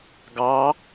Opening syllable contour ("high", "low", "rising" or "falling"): rising